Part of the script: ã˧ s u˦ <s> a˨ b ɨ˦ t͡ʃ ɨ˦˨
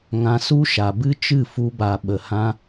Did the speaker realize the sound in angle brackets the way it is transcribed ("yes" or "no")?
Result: no